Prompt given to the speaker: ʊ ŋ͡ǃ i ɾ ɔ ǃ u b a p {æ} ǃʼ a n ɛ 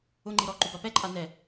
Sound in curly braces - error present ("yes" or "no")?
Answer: yes